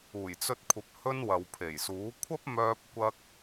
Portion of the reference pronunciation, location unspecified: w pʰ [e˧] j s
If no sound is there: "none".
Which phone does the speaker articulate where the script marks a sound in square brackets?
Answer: e˨˩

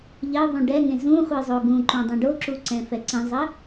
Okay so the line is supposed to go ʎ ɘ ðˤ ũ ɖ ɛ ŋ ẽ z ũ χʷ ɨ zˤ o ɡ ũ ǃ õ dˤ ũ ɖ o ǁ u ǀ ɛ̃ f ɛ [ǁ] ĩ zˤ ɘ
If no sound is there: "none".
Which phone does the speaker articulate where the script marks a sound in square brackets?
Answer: ǀ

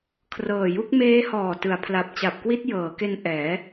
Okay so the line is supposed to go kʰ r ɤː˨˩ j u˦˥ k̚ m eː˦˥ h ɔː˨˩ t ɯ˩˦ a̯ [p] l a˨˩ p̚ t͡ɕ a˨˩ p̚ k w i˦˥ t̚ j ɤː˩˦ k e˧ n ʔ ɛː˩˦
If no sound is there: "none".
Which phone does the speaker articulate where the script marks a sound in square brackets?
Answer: pʰ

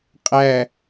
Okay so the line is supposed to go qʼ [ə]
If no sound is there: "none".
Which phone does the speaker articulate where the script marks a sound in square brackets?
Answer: æ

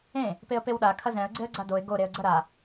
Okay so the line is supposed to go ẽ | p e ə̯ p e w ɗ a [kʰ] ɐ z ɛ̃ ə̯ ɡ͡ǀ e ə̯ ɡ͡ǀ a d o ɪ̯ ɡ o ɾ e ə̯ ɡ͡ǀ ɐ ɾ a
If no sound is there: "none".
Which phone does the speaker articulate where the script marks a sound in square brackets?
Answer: kʰ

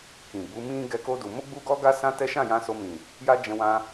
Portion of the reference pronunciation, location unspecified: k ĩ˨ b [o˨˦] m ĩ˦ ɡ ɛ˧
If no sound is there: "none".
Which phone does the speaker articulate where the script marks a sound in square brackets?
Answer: u˨˦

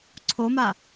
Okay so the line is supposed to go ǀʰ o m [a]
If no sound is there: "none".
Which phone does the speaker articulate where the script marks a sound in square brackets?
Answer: a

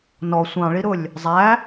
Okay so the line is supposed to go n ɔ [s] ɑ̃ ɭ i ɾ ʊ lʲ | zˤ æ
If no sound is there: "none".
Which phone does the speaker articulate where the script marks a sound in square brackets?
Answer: sʷ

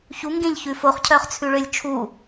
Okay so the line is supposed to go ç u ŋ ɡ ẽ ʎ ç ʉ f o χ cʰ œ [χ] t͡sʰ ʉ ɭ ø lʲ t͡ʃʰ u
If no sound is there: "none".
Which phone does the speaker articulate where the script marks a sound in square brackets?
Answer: χ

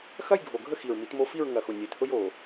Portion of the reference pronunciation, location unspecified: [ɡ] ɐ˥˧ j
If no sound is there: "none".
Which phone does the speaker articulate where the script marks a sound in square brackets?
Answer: x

